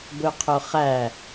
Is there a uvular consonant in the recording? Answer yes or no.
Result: yes